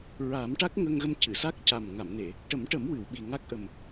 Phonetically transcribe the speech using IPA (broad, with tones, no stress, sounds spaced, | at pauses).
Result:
ɹ a˨˩˦ m ʈ a˦˥ k̚ ŋ ə˧ ŋ ɣ ə˧ m c ɨ˨˩˨ s a˦˥ k̚ c a˨˩ m ŋ a˨˩˨ m n e˨˩˨ | ʈ ə˨˩˦ m ʈ ə˨˩˦ m w ɨ˨˩˨ w ɓ i˨˩ ŋ a˦˥ k̚ ʔ ə˨˩ m